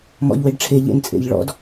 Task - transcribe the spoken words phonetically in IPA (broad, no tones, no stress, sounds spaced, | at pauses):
m ɔ̰ ʎ w e ɖ ʈ͡ʂʰ e ʎ ḛ n t͡sʼ ḛ ʎ ɭ ɔ̰ d